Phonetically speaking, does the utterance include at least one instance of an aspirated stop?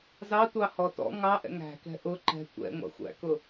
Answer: no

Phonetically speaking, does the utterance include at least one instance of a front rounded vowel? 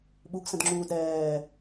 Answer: no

